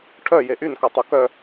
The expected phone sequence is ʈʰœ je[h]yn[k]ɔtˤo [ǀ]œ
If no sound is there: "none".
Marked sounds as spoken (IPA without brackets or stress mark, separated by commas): ʔ, k, k